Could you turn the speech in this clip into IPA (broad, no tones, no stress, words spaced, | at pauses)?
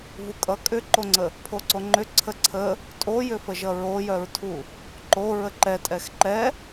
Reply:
vukʼʌ kʼʏǃoŋ͡ǀə | pʰoǀoŋ͡ǃʏ ǀʰəǀʰə | tʼojʏfəʒʌ ɹojœɹtʰu | ǃo ɹəǃɛ tʼɛxǃɛ